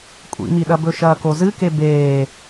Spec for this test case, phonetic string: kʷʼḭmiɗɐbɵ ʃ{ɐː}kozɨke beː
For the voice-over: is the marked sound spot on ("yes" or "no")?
yes